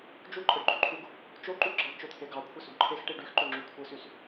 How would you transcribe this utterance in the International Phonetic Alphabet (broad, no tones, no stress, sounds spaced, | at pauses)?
d͡ʒ u ǃʼ ɯ ɖ ɡ͡ǃ y ǃʰ u ɡ | t͡ʃ o ǃ u ɡ͡ǁ ɑ ɖ t͡ʃ o t̪ʰ e ɡ ɑ kʷʰ e s u ɡ ǃʰ e x ʈ i ɖ y x ǃ ø ŋ͡ǁ y kʷʰ ɯ s y s